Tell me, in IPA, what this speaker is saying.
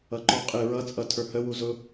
ʌ ǃ ɔ qʼ ɪ ɹ ʌ t͡sʼ ʌ tʰ ə˞ h ə w u z ʊ

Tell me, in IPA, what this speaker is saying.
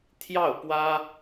t̪ʰ j ɑ˥˩ ʊ̯ p w ä˥

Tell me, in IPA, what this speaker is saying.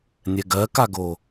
nʲ ɛ ɡ ɜ k a ɡ o

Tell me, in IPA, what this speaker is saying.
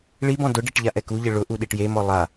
ɭ i b ɔ̃ d ʊ ɖ i ʈ ʎ a ʔ ɛ k u ʎ ɪ ɭ ʊ ʔ u ɗ i ʈ j e m ɔ lˠ a

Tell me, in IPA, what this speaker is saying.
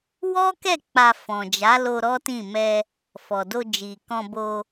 w ɔ˦ k ɛ˦˨ k͡p a˧ f ɔ̃˨ d͡ʒ a˨˦ l o˧ ɾ ɔ˦ t ĩ˦˨ m ɛ˧ | f ɔ˨ d o˧ d͡ʒ i˨ k ɔ̃˧ b o˧

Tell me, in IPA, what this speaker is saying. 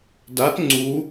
d a t ŋ͡ǀ u

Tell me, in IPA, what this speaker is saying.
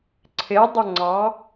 ǀʰ ɪ dˤ ʊ ŋ͡ǀ ɑ

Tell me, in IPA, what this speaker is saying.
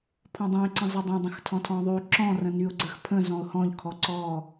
pʰ ɔ̃ dˤ õ ɪ̯ ǀ ə̃ zˤ o dˤ õ dˤ ə̃ x tʰ ɔ̃ tʰ ɔ̃ ðˤ y ǁ ɔ̃ r ə̃ n y ʊ̯ ɡ͡ǀ ə x pʰ ə̃ z ɔ̃ ʊ̯ h ɔ̃ ʎ kʰ ɔ ǀ ɔ

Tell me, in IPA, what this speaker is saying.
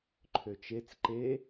ǃʰ ø t͡ʃ e t͡s ǃ e

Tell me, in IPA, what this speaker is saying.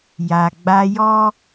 j a˨ ɡ͡b a˦ j ɔ˦

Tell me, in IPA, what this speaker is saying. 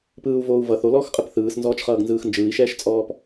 p ɯː u̯ v oː u̯ v ʌ θ o l ɔː x qʼ ɯ p θ ɯː s n z ɔː t͡ʃ χ ʌː ɡ n z ɯː x n d͡ʒ ɯː i̯ ʃ ɛː ʃ t͡sʼ ɔː p

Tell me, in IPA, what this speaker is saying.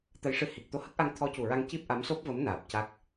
t̪ ə˧˥ j ʂ ɨ˧˥ h i˨˩ k̚ t̪ o˧ h ə˦˥ k̚ ʔ a˧ ŋ t̪ʰ ɔ˧˥ c u˨˩ ɹ a˧ ŋ c i˦˥ p̚ ʔ a˧˥ m s o˦˥ p̚ v ə˧˥ m n aː˨˩ p̚ c a˦˥ k̚

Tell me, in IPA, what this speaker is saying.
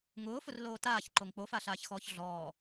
ŋ ʊː f ʊ r l oː t aː ç ǃ o ŋ k͡p o f a ɬ aː ç x ɔː ç ɮ ɔː

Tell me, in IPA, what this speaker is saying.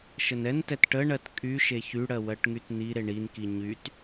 ʃ ə n ɛ n t ɛ t ʈ ə ɳ ɜ t kʼ y ʃ e ç y ɽ ɜ w ɜ ʈ ŋ y t n i ɾ e ɳ i n k i ɲ y t

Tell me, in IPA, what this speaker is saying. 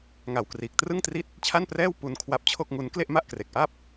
ŋ a˨˩ w k r iː˨˩ k̚ t r ɯ˥˩ ŋ t r i˥˩ t̚ | t͡ɕʰ a˥˩ n p r ɛː˥˩ w p u˧ n kʰ w a˦˥ p̚ t͡ɕʰ o˥˩ k̚ ŋ u˦˥ n k l e˥˩ ʔ m a˥˩ ʔ k r e˨˩ k̚ ʔ a˥˩ p̚

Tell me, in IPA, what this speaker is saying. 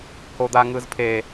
h o d̪ a ŋ ɯ z pʰ e

